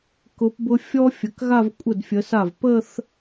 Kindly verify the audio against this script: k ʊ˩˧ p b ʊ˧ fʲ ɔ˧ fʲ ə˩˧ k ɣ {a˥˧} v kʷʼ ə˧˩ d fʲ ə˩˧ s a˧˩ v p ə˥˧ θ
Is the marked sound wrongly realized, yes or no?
no